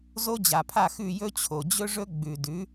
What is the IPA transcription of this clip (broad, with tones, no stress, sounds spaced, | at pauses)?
z o˦ d͡ʑ a˨ pʰ a˦˨ x ʉ˦˨ j ɵ˦ t͡ɕʰ o˨ d͡ʑ ɵ˦ ʐ ɵ˦ ɡ͡b ʉ˨ d ʉ˨˦